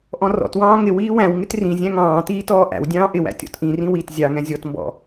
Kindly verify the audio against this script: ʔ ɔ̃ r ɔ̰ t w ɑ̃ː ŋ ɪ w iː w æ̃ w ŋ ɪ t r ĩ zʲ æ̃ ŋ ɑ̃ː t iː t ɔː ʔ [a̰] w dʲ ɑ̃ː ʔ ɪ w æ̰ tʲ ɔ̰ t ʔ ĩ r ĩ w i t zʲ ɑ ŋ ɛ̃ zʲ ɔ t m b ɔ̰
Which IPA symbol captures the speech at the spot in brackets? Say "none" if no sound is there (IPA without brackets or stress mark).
æ̰